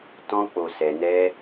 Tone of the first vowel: high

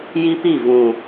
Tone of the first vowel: high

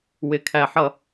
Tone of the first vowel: low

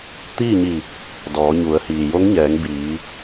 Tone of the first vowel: falling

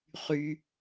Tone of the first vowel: low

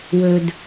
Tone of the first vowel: low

